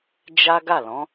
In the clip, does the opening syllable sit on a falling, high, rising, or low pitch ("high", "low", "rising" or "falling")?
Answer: high